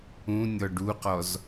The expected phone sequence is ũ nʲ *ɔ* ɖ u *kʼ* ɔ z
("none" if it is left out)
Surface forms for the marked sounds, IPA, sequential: ɔ, q

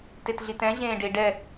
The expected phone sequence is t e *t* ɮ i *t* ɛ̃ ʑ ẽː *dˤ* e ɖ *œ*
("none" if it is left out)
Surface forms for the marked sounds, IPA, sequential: t, t, ɖ, ɛ

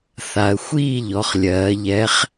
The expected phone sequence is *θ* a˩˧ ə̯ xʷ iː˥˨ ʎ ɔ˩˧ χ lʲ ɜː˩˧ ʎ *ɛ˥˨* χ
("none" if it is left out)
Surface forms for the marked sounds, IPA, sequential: θ, ɛ˨˥

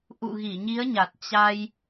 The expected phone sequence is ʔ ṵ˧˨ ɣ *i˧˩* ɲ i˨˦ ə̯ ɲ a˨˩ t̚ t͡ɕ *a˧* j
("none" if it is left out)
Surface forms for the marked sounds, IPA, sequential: i˧˩, a˧

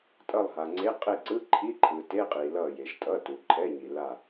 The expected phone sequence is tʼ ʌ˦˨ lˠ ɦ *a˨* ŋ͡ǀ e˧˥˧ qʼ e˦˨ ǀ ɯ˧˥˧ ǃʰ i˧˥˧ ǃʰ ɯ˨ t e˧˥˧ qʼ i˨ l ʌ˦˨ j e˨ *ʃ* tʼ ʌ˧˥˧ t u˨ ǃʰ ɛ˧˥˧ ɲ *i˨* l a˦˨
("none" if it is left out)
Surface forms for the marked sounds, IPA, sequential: a˨, ʃ, i˨

